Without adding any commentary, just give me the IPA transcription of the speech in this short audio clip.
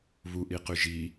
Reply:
β u ʔ i q y ʒ i

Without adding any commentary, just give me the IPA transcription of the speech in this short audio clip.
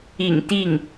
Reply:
ḭ˨˩ ŋ t̪ i˥˩ ŋ

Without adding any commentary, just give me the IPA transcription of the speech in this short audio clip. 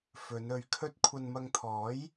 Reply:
f ɵ˨˧ n ɵ˨ ɥ kʰ ɵ˥ t̚ kʷʰ ɐ˧ n m ɐ˧ ŋ t̪ʰ ɔː˨˥ j

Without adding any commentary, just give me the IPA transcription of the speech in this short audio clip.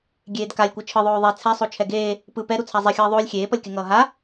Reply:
ɡʲ eː d k a lʲ kʷ ɯ t͡ʃʰ ɯ ðˤ oː ðˤ e t͡sʰ ɛ sˤ o t͡ʃʰ ɛ ɡ eː | p ɯ p ɛ ɾ u t͡sʰ a zˤ i xʲ ʌː ðˤ oː lʲ xʲ eː p ʌ lʲ k e ŋ ʌː ɦ a

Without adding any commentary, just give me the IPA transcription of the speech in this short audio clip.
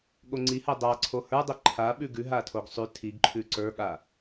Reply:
ɠ o ŋ͡ǀ i h ɜ dˤ a ǀʰ o h ə˞ dˤ ɛ ǃʰ a ɓ ʉ ɡ ʉ ɦ a tʰ o ɡ sˤ ʉ tʰ i ɡ ǃʰ ʉ ǀ ə˞ ɠ a

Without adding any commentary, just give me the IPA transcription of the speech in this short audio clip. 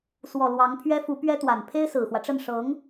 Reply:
s w ɔ˨˩ l w ɑ˧˥ ŋ pʰ ɥ ɛ˥ f u˧˥ p ɥ ɛ˥ t̪ w a˨˩ n pʰ e˥ ɪ̯ s ɹ̩˨˩ x w ä˦ ʈ͡ʂ ə˥˩ n ʂ ɤ˧˥ ŋ

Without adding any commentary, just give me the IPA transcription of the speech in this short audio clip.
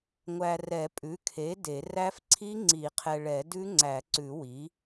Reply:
ŋʷ æ˨ r ɛ˨˩˦ pʼ ʉ˩˥ kʰ e˩˥ d e˨˩˦ r æ˦˥ f ǀʰ i˦˥ ŋ͡ǀ i˨˩˦ qʰ ɛ˨ ɭ ɛ˨˩˦ d ʉ˦˥ ŋ͡ǀ æ˨˩˦ ǀ ʉ˨˩˦ w i˩˥

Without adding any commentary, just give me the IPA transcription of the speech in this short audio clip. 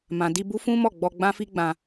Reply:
m ã˨ d i˧ b u˦ f ũ˦ m ɔ˦˨ ɡ͡b ɔ˧ ɡ͡b ã˦ f i˦ ɡ͡b ã˧

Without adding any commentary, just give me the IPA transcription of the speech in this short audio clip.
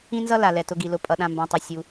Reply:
ĩ˥ n z ʌ˥ l a˩ l ɛ˩ t ʊ˨ ɡ i˩ l ʊ˩ pʼ ʌ˩ ɗ ã˨ m b ã˩ tˤ ʌ˩ sʲ u˩

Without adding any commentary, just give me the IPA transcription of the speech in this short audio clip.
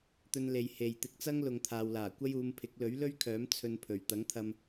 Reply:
t̪ ɵ˧ n l e˨ j h e˨ j t̪ ɪ˧ k̚ t͡s ɐ˥ ŋ l ʊ˨ ŋ t̪ʰ aː˨ w l aː˨˩ kʷ ɐ˥ j uː˨˧ m pʰ ɪ˨˥ k̚ l ɵ˨˥ ɥ l ɵ˥ ɥ kʰ œː˨˥ m t͡sʰ ɵ˧ n pʰ ɵ˨˩ ɥ t̪ ɐ˨˥ ŋ t̪ʰ ɐ˧ m

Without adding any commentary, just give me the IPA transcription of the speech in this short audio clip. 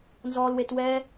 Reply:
n z ɔː˧ l w e˧ t w ɛː˦

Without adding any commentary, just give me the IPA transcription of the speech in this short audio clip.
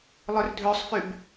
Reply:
lˠ ø r dʱ ø sˤ f y b

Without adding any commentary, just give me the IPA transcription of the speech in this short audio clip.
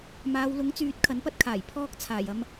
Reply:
m aː˨˧ w l ʊ˨˥ ŋ t͡s yː˨˥ t̚ kʰ ɐ˨˥ n p ɐ˥ t̚ kʰ aː˨˩ j pʰ ɔː˥ k̚ t͡sʰ aː˨˩ j ɐ˧ m

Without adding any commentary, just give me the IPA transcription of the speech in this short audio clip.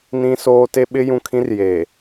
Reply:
n ĩ˦ s oː˦ t e˦ ɓ ɪ˦ j ũ˨ kʰ ĩ˦ r j eː˨

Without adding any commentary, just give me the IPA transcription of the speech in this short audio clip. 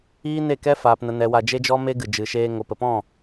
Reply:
iː˦ n e˦˨ k ɛ˦ f aː˨ p n ə˨ n ɛ˨ w a˧ d͡ʒ e˦ d͡ʒ ɔ˦ m e˦ ɡ ɨ˨ d͡ʒ ɨ˨ ʃ eː˧ ŋ o˨ p ə˨ p ɔ̃˦˨

